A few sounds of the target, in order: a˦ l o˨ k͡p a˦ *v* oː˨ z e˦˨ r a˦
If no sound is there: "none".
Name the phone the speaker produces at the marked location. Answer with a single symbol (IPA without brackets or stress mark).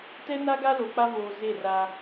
v